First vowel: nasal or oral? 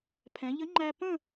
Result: nasal